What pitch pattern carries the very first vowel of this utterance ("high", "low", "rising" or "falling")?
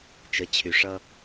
rising